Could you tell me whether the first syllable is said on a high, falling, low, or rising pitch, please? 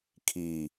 low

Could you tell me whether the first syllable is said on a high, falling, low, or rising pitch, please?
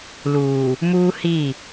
low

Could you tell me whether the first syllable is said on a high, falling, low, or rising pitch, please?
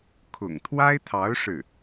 low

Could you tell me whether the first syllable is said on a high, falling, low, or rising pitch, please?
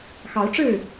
rising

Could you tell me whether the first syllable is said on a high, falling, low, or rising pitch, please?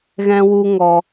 high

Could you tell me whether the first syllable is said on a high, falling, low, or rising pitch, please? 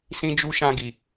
high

